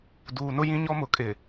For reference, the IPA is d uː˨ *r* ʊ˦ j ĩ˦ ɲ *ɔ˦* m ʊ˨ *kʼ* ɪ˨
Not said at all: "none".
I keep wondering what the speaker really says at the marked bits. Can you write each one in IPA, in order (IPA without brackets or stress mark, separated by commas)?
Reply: n, ɔ˦, kʼ